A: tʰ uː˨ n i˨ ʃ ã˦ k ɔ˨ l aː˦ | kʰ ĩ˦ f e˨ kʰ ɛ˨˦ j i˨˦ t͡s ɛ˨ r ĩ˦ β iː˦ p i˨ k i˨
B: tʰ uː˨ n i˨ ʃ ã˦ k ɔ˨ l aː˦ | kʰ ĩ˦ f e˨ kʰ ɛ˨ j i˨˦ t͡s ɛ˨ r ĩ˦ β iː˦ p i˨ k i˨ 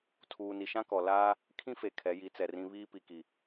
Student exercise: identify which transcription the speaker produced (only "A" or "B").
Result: A